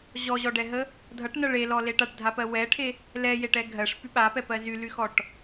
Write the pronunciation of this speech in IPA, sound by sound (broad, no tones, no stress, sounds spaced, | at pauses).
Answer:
ʑ ɔ ʑ ɔ ɖ ɛ ɦ ə | dʱ ʌ ʈ n ʌ ɭ e l ɔ l e ʈ a ʈ dʱ a p ɜ w ɛ ʈʰ e | l ɛ j e ʈ ɛ ɡʱ ɜ ʂ p y ɓ a p ɛ p ɜ z y l y x ɔ ʈ